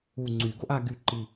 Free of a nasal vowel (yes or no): yes